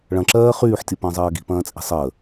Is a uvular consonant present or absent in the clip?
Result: present